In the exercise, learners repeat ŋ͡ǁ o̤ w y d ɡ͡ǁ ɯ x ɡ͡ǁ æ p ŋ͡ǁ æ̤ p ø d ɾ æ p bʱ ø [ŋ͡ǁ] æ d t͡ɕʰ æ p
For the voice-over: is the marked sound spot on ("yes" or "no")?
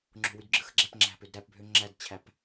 yes